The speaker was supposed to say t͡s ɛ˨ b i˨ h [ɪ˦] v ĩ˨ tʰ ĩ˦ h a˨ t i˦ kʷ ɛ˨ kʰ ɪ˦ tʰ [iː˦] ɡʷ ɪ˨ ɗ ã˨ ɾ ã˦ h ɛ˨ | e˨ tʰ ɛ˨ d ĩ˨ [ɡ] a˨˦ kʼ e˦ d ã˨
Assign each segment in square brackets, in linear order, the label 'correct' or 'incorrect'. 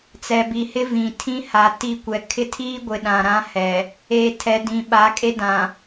correct, correct, incorrect: ɓ

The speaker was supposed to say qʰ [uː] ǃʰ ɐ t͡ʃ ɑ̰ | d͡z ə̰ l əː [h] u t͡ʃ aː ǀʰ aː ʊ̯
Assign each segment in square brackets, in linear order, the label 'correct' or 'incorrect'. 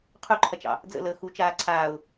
incorrect: u, incorrect: x

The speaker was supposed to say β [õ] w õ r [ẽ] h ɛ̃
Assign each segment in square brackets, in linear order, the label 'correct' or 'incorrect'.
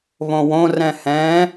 correct, incorrect: ɛ̃

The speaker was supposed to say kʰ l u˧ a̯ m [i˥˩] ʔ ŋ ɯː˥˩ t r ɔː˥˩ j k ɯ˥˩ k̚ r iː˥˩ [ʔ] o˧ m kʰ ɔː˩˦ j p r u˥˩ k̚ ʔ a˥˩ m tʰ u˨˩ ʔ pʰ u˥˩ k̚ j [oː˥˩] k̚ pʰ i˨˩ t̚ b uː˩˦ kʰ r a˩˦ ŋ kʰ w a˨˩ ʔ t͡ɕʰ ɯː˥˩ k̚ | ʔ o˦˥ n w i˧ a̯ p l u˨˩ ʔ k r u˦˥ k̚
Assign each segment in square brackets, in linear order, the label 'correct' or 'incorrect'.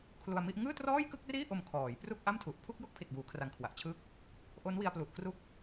correct, correct, incorrect: o˥˩

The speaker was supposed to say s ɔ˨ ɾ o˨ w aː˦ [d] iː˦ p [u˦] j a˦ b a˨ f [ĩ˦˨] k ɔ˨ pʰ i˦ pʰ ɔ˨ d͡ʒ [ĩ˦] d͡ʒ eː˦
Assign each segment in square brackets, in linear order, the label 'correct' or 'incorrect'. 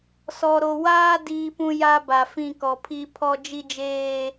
correct, incorrect: ũ˦, correct, incorrect: i˦

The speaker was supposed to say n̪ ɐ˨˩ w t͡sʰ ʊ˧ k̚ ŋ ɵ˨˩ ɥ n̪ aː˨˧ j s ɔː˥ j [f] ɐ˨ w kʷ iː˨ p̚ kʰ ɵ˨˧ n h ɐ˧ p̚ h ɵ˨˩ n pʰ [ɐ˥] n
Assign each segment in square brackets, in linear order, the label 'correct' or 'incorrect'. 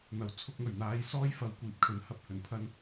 correct, incorrect: ɐ˧

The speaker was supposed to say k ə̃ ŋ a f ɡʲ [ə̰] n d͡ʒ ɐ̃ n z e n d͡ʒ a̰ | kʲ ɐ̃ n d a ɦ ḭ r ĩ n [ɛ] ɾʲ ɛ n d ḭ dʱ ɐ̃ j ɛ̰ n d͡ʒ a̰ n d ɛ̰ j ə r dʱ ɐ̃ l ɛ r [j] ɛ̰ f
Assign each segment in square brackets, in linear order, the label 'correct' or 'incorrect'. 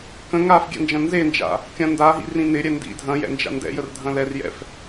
incorrect: ɛ̰, incorrect: ɪ, correct

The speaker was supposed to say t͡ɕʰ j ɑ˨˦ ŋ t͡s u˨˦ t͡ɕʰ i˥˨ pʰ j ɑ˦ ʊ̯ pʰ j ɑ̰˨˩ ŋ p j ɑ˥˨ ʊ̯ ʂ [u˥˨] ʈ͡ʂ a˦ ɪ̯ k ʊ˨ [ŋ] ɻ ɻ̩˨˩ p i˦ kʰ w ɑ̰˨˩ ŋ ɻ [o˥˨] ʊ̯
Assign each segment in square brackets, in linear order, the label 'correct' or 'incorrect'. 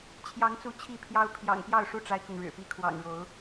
correct, correct, incorrect: o˨˦

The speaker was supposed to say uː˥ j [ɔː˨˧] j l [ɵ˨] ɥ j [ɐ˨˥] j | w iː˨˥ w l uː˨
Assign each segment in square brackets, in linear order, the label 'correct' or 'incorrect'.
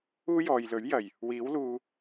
incorrect: ɔː˨, incorrect: ɵ˨˥, incorrect: ɐ˨˩

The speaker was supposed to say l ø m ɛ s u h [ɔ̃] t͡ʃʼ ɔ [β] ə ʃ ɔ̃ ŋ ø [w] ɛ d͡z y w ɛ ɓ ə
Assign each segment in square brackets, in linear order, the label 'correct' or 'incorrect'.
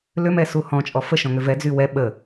correct, incorrect: f, incorrect: v

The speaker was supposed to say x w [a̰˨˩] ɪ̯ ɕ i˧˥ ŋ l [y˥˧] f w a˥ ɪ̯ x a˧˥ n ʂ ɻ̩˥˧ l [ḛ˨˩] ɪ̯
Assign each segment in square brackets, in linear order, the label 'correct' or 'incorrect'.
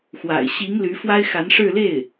correct, incorrect: y˧˥, incorrect: e˥˩

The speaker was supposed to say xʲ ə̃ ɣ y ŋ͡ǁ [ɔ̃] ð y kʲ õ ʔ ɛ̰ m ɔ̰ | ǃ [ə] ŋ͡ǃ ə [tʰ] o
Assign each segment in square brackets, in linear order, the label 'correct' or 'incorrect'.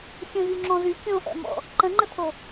correct, incorrect: ə̃, correct

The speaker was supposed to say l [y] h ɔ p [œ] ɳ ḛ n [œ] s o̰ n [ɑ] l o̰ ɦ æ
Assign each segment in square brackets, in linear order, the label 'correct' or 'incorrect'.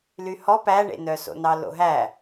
correct, incorrect: æ, correct, correct

